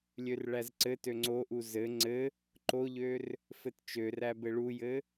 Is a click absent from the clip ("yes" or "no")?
no